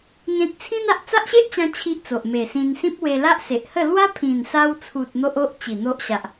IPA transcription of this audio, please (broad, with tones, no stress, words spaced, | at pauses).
ŋẽ˦t̚ t͡sʰĩ˦na˨ʔ t͡sa˦ʔɕe˦ʔt͡ɕã˧ t͡ɕʰi˦ʔt͡so˨ʔ me˨˩sĩ˧nsĩ˦p̚ we˧la˦ʔse˨ʔhə˥˧ lwa˦pʰĩ˨˩nsa˧wt͡sʰu˨t̚ n̪o˦ʔo˦ʔ t͡ɕi˨˩n̪o˦ʔɕa˨ʔ